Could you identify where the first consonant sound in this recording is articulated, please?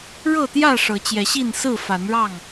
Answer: retroflex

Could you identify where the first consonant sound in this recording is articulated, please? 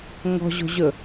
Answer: velar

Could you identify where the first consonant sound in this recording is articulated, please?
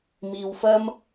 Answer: labial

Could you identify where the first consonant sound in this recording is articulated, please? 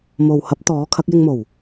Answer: labial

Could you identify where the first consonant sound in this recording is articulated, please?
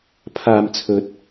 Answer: labial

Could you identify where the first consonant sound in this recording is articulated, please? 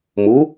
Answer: labial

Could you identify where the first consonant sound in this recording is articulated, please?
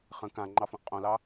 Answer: uvular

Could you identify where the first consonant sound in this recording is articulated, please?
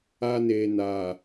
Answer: alveolar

